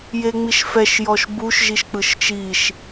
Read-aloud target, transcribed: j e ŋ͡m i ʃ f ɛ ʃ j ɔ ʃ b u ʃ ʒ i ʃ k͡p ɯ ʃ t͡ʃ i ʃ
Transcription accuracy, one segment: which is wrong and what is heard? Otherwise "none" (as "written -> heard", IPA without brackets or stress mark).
none